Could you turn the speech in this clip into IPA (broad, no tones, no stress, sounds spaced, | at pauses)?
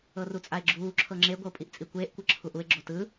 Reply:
ɤ r u t͡sʼ a e̯ ɡ͡ǁ uː ǁʰ ɤ ŋ͡ǁ e ɡʷ ʌ o̯ pʼ i ʔ t͡sʼ i kʷ eː ʔ kʷ ɤ ǁʰ u ʔ u e̯ ɡ͡ǁ o t ɯ